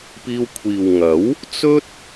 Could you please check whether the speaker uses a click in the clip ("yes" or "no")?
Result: no